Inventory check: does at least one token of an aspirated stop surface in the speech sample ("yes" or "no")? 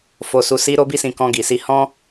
no